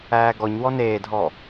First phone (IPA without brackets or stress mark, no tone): æː